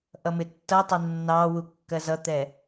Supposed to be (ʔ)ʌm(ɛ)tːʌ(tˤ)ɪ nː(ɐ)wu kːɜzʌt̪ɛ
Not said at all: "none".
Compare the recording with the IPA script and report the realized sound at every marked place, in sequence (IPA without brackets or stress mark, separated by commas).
ʔ, ɪ, tˤ, ɑ